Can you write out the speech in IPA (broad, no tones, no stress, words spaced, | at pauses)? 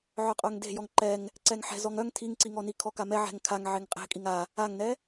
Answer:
ʕœqʼœŋde̤ jɔŋǃɛŋ | ǀɛŋħɛ̤ zɔŋœŋ tʰiŋǀiŋɔni kʰɔkamɛ ʕɛ̤ŋ kʰaŋ ʕeŋqʼe̤kʼiŋ a | aŋnɛ